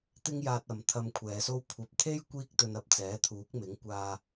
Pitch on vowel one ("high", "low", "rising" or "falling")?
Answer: high